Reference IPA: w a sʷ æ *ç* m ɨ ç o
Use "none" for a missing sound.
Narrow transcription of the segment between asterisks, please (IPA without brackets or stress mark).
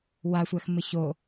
x